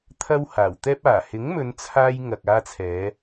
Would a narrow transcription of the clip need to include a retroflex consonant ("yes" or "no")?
no